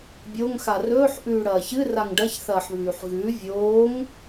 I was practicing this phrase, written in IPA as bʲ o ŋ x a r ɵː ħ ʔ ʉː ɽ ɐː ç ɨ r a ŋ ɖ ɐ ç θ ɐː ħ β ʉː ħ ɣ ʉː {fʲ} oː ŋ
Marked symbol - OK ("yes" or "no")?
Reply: no